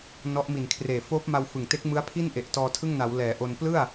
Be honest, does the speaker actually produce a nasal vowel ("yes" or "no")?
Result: no